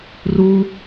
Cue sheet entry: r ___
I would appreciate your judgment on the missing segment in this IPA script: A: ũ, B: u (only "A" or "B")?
B